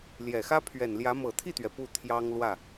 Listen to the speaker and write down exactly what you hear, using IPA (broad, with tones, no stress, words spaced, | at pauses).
ljɛ˨˩xä˥ pʰɥɛ˨˩nljä˧˥ mɤ˨˩t̪ʰi˥˩t̪ɥɛ˩ pu˥˩t̪ʰjɑ˥ŋ lwä˥˩